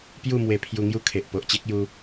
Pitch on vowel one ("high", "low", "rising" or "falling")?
falling